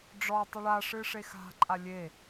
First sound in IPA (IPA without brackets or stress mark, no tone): ɖ͡ʐ